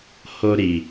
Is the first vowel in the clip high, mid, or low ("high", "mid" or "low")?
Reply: mid